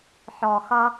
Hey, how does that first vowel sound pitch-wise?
low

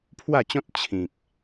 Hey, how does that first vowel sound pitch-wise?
falling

